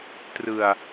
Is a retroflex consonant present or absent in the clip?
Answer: absent